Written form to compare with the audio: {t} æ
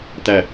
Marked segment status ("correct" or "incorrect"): correct